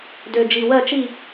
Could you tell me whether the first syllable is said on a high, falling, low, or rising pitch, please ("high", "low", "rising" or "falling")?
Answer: low